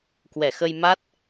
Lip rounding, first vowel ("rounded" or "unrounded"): unrounded